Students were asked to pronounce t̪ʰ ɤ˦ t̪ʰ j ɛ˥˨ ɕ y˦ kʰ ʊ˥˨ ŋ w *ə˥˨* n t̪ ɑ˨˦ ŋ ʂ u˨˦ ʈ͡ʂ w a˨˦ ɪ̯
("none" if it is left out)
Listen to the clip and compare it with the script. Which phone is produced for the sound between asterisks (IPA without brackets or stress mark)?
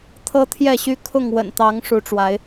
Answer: ə̰˨˩